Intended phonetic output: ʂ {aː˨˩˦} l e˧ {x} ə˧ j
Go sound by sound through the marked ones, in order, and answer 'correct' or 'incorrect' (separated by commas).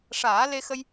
correct, correct